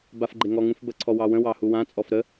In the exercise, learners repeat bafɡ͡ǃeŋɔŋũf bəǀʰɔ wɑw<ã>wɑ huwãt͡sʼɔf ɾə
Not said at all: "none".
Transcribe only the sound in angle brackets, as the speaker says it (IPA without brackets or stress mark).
ə̃